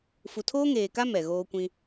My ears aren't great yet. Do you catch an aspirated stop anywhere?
yes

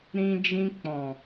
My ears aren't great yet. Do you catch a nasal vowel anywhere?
yes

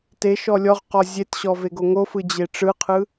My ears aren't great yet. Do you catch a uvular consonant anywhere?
yes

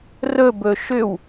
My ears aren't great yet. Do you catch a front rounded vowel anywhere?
yes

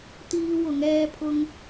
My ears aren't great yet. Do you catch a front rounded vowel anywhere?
no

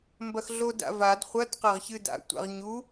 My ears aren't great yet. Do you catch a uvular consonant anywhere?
yes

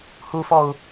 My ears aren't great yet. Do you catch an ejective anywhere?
no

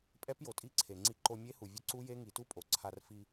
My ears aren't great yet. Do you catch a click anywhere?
yes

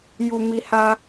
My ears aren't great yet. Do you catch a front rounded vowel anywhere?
no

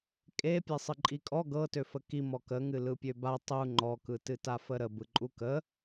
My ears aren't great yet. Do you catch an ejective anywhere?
yes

